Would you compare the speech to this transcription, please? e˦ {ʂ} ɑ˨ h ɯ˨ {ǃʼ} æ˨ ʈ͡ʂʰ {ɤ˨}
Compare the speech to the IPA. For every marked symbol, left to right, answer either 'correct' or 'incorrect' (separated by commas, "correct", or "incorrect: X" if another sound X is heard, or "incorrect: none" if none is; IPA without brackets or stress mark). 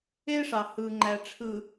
correct, incorrect: ŋ͡ǃ, incorrect: ɯ˨